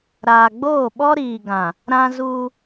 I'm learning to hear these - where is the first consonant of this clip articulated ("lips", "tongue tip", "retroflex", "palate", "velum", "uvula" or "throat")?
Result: tongue tip